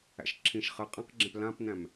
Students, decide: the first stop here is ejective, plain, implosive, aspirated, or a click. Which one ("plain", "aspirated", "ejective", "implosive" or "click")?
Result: click